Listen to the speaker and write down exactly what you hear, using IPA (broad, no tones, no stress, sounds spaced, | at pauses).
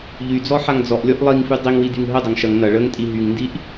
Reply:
ʎ y d͡z ɔ ħ a ŋ d͡z ɔ ʔ lʲ ɔ ʔ lˠ i ŋ f y dˤ i ŋ w i d y ŋ ɦ ə dˤ ɐ ŋ ʃ ɐ ŋ n ɐ ɭ ə ŋ tʼ i ɦ y ŋ n d i ʔ